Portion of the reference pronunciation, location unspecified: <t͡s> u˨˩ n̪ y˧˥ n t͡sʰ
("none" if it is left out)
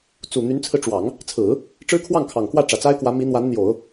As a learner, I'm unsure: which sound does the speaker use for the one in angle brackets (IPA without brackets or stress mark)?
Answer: t͡s